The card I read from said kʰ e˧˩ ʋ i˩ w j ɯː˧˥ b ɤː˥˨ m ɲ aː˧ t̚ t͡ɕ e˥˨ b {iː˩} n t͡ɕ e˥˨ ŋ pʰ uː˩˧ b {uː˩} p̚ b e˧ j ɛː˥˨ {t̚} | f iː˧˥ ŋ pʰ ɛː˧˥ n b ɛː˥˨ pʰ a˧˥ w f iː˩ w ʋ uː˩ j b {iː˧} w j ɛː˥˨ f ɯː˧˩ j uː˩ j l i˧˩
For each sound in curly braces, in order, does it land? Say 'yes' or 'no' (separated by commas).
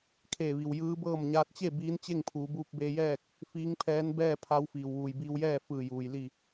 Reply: no, no, no, yes